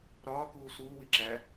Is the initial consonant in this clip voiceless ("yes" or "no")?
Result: no